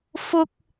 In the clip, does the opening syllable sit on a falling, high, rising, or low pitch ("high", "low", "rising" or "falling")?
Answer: high